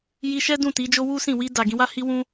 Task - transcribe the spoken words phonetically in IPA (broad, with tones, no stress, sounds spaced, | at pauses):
j i˧ ʃ ɛ˦ d ũ˦˨ t i˨˦ d͡ʒ o˦ w u˦ s ĩ˦˨ w i˧ d a˨ ɡ ĩ˧ w a˦ h i˦ w ũ˦